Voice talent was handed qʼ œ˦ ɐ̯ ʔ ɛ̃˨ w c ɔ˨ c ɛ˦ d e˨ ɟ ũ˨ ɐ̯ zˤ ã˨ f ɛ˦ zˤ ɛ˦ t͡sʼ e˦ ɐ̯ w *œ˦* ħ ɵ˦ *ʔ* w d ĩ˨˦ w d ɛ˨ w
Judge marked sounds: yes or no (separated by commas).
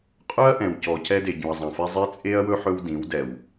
no, no